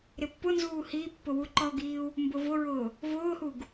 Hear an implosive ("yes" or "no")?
no